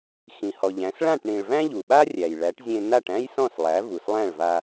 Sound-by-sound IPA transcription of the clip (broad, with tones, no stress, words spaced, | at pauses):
xĩ˩hɔ˩ ʎæ̃˩˥s ɭã˥˩ʈɳĩ˩ɭ væ̃˥ʎu˩ɓa˥ rʲæ˩j ɭæ˩˥ʈzʲẽ˧ na˥˩ʈæ̃˥jsɔ̃˥˩slˠæ˩˥ vu˩slˠæ̃˥˩ɭva˧